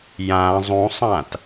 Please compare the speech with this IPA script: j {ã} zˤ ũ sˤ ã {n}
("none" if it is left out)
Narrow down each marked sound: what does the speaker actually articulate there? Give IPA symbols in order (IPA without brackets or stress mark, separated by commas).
ã, t